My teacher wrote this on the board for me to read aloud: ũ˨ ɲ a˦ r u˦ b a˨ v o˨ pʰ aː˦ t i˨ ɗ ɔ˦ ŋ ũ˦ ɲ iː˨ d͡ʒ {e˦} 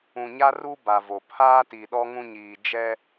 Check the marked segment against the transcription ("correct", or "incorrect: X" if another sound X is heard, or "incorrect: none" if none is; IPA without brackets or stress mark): incorrect: ɛ˦